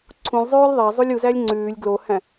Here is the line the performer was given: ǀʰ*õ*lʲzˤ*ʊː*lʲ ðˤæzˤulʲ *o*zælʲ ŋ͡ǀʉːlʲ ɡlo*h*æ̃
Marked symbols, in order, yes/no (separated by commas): no, no, no, yes